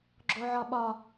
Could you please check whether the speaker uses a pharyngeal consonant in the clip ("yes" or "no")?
yes